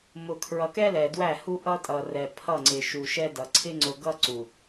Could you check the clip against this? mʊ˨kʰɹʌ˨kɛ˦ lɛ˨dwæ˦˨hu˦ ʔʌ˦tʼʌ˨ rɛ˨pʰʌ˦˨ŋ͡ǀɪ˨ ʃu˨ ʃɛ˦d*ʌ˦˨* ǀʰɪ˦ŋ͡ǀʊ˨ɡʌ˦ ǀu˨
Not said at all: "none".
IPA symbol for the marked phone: ʌ˨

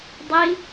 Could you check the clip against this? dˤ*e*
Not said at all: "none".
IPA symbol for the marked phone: i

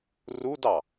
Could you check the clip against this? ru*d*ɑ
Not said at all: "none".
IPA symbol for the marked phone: d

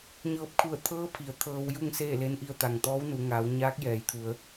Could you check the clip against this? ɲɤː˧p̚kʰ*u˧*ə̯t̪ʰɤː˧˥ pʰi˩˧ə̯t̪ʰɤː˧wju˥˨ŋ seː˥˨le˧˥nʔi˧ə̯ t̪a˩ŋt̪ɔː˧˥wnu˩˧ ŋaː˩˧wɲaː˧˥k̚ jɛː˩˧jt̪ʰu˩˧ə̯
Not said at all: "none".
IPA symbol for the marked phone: u˧˩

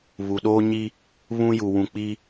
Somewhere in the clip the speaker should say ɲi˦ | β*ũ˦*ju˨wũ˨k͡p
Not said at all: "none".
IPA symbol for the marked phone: ũ˦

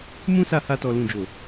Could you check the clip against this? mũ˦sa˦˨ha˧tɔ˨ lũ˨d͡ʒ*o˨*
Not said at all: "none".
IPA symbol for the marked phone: o˨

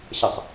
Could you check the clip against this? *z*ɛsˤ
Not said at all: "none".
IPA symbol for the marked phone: ɕ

